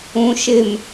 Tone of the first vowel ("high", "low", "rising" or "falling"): low